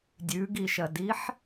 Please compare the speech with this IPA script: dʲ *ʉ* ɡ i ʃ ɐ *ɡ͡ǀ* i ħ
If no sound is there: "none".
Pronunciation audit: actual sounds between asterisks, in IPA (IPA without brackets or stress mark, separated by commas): ʉ, d